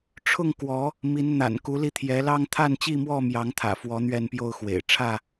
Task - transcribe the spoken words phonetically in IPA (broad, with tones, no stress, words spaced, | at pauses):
ʈ͡ʂʰʊ˥˨ŋ kwɔ˨˦ | mi˨˦nn̪a̰˨˩n ku˨˦li˧t̪ʰjɛ˨˦lɑ˦ŋ t̪ʰa˥˨nt͡ɕi˥˨mwɔ˥˨mjɑ˨˦ŋ t̪ʰä̰˨˩ fwɔ˨˦n̪ɥɛ˥˨npjo˥˨ʊ̯ xwḛ˨˩ɪ̯ ʈ͡ʂʰä˥˨